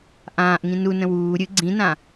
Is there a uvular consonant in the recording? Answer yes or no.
no